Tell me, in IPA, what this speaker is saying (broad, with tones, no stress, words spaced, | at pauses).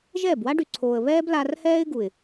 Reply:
ʒɛː˦˨bwa˦ɖy˨ǀʰoː˨ə̯ βɛː˦blaː˧rhɛː˦ɪ̯ɡu˨ɪ̯